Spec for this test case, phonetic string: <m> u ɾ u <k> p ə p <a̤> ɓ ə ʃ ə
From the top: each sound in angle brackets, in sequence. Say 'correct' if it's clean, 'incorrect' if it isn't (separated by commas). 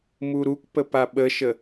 correct, correct, incorrect